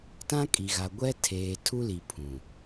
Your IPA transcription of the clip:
t ã˦ kʼ i˨ ɣ a˨ ɡʷ ɛ˦ tʰ eː˨ tʰ u˦ l i˨ pʰ ũ˨

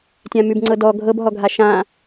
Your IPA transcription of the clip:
tʲ ã m ʉ b ŋ͡ǀ ɤ d ɔ ɡʱ ɤ b ɦ ɔ ɡʱ a ʃ ã

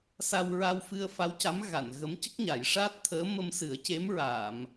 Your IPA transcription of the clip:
s a˧ w ɹ a˧ w f ɨ˧ ə̯ f a˧˥ w c a˧˥ m ɣ a˨˩˨ n ɣ ə˧˥ m c ə˦˥ k̚ ɲ a˨˩˦ j ʂ aː˦˥ t̚ t̪ʰ əː˧˥ m ə˧ m s ɨ˨˩˦ ə̯ c e˧˥ m ɹ aː˨˩˨ m

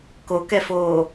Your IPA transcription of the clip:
k o k ɛ f oː

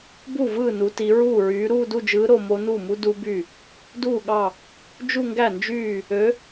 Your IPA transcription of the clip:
b u˥˩ v ɯː˥˩ n u˩˧ t i˩˧ ɹ uː˥˩ ɹ yː˨˥ ɾ uː˥˧ d u˥˧ d͡ʒ ɯː˨˥ ɾ o˥˧ m o˦˥ n uː˥˩ m u˦˥ d u˦˥ b y˥˩ | d uː˥˩ ɠ ɑ˥˩ | d͡ʒ u˥˧ ŋ ɡ æ˥˩ n d͡ʒ yː˥˩ | ø˨˥

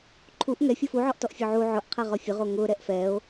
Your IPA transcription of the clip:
ǃʰ u ʔ ŋ ɛ fʲ o f u ʕ ɔ ʔ t ɔ ʔ fʲ o ʕ u ʕ ʊ ʔ qʰ ɛ ʁ ɔ fʲ ʊ ʁ o ŋ ʊ ɾ ɛ ʔ f ɛ o̯

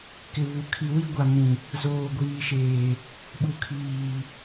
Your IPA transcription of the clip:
k ɪ˨ β u˨ kʰ i˨ w i˦ ɡʷ a˨ m ĩ˨ | z oː˨ ɡʷ iː˨ ʃ eː˨ | ɓ u˨ kʰ iː˨

